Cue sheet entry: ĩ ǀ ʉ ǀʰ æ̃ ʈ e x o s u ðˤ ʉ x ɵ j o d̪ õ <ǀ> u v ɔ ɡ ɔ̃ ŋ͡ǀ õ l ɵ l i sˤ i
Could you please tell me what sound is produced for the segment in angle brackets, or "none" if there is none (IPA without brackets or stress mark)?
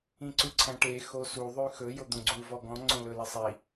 ɡ͡ǀ